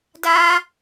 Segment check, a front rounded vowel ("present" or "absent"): absent